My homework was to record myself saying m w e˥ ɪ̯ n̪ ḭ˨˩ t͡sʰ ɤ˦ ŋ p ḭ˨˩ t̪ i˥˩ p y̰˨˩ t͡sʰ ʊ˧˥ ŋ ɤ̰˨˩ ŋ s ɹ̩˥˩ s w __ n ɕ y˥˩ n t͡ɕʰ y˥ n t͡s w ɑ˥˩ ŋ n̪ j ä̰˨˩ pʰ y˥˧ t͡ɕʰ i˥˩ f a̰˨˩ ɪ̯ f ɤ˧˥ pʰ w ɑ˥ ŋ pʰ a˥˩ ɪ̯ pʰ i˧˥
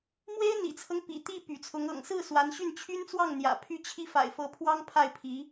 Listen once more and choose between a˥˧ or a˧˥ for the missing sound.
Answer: a˧˥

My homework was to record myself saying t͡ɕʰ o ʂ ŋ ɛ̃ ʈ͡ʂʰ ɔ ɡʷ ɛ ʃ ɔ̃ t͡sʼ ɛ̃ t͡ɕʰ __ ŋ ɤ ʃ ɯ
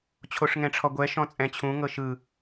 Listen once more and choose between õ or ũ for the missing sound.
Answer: ũ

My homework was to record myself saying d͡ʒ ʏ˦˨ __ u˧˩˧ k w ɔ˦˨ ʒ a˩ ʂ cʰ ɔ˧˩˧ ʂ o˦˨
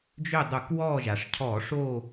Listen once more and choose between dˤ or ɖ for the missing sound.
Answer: dˤ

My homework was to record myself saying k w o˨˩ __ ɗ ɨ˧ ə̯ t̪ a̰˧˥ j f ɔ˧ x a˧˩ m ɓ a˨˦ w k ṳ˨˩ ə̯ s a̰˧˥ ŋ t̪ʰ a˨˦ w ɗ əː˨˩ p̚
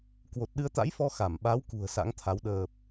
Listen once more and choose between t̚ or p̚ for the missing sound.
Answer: t̚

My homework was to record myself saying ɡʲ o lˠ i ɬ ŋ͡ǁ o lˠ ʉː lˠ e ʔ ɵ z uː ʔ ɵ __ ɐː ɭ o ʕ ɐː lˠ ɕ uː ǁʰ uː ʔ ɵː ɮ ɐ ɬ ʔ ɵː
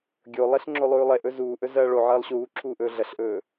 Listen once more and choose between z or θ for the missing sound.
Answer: z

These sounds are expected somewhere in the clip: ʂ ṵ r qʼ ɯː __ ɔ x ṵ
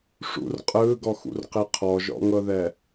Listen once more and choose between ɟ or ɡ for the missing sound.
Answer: ɡ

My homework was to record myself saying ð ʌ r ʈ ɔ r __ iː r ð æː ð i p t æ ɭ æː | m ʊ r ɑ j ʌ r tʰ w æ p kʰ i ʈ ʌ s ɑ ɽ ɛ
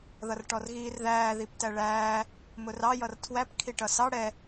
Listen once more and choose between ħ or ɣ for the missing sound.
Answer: ɣ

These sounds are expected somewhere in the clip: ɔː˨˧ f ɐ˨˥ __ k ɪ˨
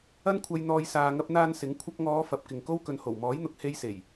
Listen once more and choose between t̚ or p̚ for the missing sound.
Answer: p̚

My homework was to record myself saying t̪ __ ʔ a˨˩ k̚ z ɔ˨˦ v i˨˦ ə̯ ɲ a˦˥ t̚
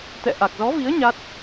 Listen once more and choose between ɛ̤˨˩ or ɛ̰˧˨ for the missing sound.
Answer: ɛ̰˧˨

